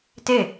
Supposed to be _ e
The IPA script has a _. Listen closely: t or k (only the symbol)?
t